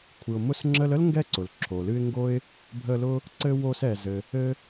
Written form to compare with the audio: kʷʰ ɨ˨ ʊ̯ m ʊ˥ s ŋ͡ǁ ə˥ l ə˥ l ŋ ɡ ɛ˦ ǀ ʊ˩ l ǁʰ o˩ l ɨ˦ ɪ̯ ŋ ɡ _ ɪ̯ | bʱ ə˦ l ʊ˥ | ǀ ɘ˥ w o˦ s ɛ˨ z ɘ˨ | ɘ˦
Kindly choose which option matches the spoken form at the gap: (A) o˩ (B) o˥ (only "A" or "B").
B